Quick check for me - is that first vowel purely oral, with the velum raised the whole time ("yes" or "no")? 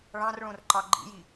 no